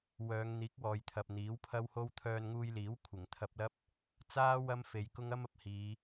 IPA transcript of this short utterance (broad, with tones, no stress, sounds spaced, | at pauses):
w œː˨˧ ŋ n̪ iː˨˥ k̚ w ɔː˨ j t̪ʰ ɐ˨ p̚ n̪ iː˨˥ w pʰ ɐ˥ w h o˥ w t̪ʰ œː˧ n ŋ uː˧ j l iː˨˥ w kʷʰ ɪ˨˩ ŋ t̪ʰ ɐ˧ p̚ l ɐ˥ p̚ | t͡s aː˥ w ɐ˥ m f e˨˧ j k ʊ˥ ŋ ɐ˥ m ɐ˨ p̚ h iː˨˧